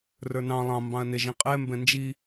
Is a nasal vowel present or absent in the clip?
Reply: present